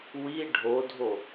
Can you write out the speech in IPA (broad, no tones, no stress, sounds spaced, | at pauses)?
w i ɖʱ o dʱ o